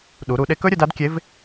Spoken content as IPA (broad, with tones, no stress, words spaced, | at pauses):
ɗu˩˧ɾu˩˧ɗe˧kɵ˥ ɾʲɵ˧da˧˥dkʲe˧˥v